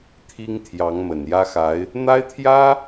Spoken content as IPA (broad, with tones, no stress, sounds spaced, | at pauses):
t̪ʰ i˥ ŋ t̪ʰ j ɑ˧˥ ŋ m ə˨˩ n j ä˥ x a˧˥ ɪ̯ | n̪ a˥ ɪ̯ t̪ʰ j ä˥